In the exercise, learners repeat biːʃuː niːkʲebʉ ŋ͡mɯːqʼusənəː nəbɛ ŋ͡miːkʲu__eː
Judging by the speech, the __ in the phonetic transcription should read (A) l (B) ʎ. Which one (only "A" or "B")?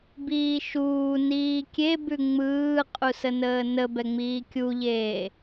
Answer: B